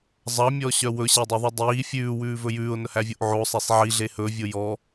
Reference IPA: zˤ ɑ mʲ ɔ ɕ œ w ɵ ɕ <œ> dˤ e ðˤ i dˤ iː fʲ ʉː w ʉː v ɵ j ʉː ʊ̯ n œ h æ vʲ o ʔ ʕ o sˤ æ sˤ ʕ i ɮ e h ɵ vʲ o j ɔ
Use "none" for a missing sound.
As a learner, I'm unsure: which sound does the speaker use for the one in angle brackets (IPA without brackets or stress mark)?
æ